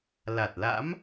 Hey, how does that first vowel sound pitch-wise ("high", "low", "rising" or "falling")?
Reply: low